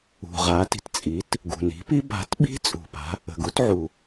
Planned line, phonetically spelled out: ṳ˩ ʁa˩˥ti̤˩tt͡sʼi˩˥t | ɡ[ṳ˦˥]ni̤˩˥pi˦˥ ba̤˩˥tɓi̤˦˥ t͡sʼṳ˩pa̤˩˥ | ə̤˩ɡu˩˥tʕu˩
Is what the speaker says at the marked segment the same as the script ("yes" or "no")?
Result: no